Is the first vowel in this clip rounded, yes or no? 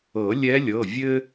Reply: no